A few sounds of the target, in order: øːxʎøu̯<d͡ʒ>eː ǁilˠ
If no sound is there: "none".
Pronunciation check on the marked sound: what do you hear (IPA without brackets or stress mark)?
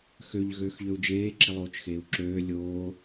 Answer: d͡ʒ